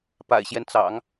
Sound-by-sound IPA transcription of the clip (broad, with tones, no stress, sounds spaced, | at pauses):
p a̰˨˩ ɪ̯ ɕ j ɛ˦ n t͡s ɑ̰˨˩˦ ŋ